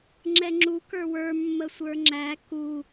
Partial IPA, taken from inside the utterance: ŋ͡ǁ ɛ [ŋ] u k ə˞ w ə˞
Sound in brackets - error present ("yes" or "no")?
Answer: yes